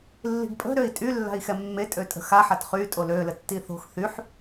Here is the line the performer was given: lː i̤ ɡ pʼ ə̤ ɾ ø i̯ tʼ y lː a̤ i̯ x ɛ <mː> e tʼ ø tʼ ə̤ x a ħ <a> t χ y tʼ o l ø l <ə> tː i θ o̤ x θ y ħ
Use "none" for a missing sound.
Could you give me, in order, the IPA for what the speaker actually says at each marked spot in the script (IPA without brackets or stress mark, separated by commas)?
mː, a, ə